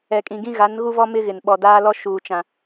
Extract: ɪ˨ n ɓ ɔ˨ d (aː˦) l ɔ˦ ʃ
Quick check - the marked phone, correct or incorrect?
correct